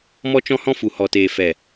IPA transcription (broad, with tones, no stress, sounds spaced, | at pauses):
m ɔ˧ t͡ʃ ɔ̃˧ h ɔ̃˧ f u˨ h ɔ˨ t eː˨ f ɛ˨